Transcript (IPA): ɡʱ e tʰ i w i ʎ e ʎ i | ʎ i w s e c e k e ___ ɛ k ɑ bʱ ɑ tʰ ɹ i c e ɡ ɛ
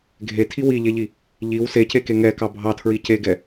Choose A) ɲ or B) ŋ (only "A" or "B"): B